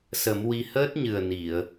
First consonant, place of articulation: alveolar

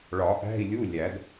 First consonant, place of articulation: retroflex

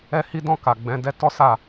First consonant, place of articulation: glottal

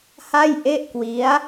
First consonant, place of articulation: glottal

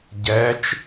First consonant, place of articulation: palatal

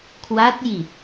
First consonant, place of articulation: velar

